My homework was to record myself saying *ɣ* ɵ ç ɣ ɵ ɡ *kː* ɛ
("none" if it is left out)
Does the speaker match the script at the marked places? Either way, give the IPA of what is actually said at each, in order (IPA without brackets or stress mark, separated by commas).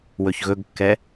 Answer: w, kː